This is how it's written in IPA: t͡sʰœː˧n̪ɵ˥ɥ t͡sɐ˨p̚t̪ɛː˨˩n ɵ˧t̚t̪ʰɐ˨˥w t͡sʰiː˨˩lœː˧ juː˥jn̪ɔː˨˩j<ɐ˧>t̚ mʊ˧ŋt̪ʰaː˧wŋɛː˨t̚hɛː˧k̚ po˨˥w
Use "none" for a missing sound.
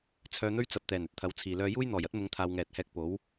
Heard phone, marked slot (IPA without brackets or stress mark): ɐ˥